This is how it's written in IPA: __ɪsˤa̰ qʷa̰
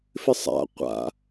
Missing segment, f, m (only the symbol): f